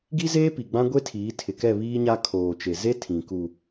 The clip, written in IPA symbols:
ɡi˦zeː˦pi˨ ɡ͡bã˦ɡʷe˦tʰiː˨˦ tʰɪ˨kɛ˦˨ βiː˦ɲa˦ kʰoː˨t͡ʃe˨ze˦ tʰĩ˨ku˨

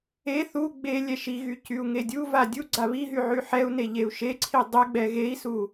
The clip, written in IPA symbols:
e θu ɡ͡be lʲɛʃiɣy cyu̯ŋedʲuva dʲu ɡ͡ǀaβiɦy ʕyħɛu̯ne ʎeu̯ʃeǀʰi dˤeɡ͡bɛ ɣei̯su

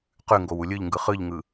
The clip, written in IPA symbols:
qʉŋɡow ulʲɯʎŋɡɯ χɯʎŋɯ

